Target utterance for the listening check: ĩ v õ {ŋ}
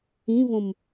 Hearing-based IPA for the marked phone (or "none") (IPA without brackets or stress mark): m